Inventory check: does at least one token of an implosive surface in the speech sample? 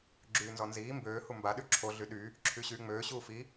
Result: yes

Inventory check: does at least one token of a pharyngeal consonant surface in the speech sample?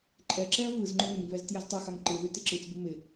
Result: no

